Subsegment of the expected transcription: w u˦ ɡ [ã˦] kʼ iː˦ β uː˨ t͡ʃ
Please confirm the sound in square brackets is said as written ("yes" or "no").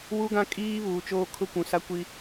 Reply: yes